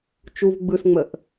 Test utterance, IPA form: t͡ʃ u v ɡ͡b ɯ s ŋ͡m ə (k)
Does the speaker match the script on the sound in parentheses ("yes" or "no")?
no